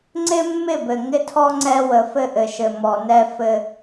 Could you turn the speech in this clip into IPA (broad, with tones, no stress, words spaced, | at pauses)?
ŋ͡ǀɪ˦mːɪ˦˨bɘ˨ ŋɪ˦tʰɔ˦ ŋ͡ǀɛ˦ wə˨fɘ˦ʔɘ˨ʃɘ˨ mɔ˨nɛ˦ fɘ˦